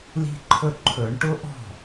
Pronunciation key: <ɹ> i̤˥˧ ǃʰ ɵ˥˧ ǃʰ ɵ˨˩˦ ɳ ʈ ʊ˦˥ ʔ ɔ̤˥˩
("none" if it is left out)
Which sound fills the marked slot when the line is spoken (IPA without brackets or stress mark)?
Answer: l